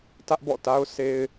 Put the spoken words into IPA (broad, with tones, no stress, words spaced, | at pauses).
tä˦ʔbɔ̰˦˨ta˦ʊ̯ sʰe˦ɪ̯